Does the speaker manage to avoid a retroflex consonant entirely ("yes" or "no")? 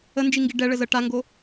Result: no